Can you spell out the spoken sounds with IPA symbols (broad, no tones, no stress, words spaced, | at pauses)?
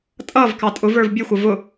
tʼʌv kɑtʼʊvə˞v bʲʊxʷʌ vʊ